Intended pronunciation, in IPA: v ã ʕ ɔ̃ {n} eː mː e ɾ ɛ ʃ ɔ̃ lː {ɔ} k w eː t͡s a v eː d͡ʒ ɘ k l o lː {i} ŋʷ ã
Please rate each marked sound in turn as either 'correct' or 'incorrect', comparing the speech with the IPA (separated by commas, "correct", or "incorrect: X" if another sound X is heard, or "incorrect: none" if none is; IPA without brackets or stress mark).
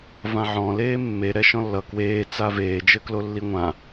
incorrect: l, incorrect: ʌ, correct